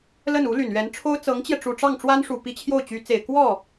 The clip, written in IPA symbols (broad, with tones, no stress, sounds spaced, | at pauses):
l ə˥˩ n u˧˥ l y˨˩ n ɥ ɛ˧˥ n ʈ͡ʂʰ o˥ ʊ̯ t͡s ɤ˧˥ ŋ t͡ɕ j ɛ˧ ʈ͡ʂ u˨˩ ʈ͡ʂ ɑ˥˩ ŋ ʈ͡ʂ w a˥ n ʂ u˨˩ p i˧˥ t͡ɕʰ j o˥˩ ʊ̯ t͡ɕ y˧˥ t͡s e˨˩ ɪ̯ k w ɔ˥˩